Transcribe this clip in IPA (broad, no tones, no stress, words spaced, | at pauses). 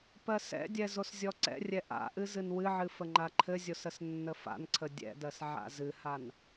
pɜsɛ̰dʲɛ zoszʲɔǀɛ̰rʲɛ ʔa̰ʔɨ zɨnwɨʕɨ fəŋ͡ǃaǃʰɘzʲos əsnːəfa̰nǀʰə dʲɛ̰dɜs ʕa̰zɨhan